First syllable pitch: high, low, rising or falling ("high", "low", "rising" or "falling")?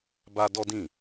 high